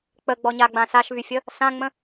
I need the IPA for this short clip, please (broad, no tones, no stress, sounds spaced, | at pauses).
k͡p ə ɡ͡b ɔ ɲ a ɡ͡b ã s a ʃ β y fʲ ə | s ã ŋ͡m ə̃